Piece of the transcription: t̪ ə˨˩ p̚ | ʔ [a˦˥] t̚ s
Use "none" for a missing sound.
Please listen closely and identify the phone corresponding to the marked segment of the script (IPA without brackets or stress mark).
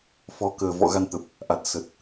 a˨˩